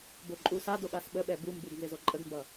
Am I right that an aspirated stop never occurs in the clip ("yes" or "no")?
yes